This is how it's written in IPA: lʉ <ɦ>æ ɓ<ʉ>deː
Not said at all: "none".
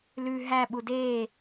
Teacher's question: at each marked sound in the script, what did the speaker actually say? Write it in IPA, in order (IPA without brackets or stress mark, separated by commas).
ɦ, u